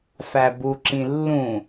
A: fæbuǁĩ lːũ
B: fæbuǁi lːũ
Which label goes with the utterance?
A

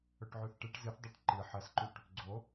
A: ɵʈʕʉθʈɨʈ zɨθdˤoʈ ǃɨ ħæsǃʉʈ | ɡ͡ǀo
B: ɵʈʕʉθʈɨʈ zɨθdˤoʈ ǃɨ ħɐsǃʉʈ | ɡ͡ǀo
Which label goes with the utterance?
B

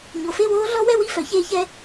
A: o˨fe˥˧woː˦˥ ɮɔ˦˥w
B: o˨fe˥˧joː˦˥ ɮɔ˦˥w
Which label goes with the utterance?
A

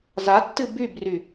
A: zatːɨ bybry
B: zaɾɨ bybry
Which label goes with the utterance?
A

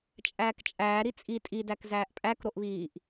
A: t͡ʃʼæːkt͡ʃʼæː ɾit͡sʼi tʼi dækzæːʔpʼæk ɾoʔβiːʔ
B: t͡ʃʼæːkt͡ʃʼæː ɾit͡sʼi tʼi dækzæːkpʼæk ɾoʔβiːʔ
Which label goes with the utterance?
A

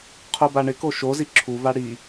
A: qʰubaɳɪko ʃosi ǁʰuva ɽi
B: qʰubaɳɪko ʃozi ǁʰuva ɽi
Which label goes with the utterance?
B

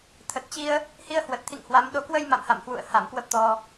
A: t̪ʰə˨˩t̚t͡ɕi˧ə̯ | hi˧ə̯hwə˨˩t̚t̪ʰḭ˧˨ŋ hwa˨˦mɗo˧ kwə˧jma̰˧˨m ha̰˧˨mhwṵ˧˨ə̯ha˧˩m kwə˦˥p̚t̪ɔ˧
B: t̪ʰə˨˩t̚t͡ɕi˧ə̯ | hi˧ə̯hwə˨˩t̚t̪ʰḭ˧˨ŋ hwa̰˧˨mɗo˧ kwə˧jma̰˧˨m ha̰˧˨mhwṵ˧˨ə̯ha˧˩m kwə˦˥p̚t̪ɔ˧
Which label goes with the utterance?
A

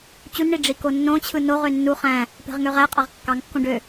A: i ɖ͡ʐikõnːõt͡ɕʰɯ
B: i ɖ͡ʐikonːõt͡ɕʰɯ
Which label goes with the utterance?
B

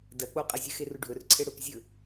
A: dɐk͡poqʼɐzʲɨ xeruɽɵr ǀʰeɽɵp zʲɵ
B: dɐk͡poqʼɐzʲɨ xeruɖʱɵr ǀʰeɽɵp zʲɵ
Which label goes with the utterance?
B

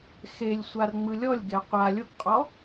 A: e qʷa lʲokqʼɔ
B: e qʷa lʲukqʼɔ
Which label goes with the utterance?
A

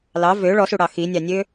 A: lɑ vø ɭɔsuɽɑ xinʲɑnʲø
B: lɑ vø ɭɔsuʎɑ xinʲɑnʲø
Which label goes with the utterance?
A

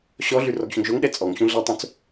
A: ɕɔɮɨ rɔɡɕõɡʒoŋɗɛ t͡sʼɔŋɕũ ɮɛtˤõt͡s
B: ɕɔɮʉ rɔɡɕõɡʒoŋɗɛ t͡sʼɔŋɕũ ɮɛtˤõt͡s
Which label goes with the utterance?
B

